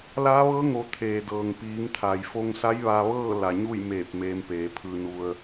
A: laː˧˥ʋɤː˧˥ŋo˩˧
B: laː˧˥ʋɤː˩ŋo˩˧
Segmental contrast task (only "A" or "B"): A